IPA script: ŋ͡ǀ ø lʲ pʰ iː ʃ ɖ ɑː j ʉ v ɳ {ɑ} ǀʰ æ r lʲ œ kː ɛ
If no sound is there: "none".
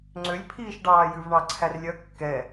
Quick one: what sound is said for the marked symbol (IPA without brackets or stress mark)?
ɑ